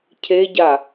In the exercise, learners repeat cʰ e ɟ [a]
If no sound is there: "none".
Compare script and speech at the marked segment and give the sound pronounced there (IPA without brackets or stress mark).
a